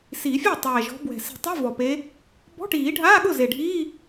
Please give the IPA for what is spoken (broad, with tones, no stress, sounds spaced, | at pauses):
s i˨˩˦ fʲ ɛ˥˩ tˤ ɛː˨˩ ʒ ɔ̤˨˦ b w ɛ̤˨˩ s i̤˨˩˦ tˤ i˧˥˧ v ɔ˨˩ p e˨˦ | b ɔ̤˧˥˧ ʈ iː˨˩˦ ɖʱ aː˧˥˧ ɠ ʊ˥˩ z e˨˩ ɖʱ iː˧˥˧